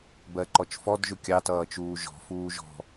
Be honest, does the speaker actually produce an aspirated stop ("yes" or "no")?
no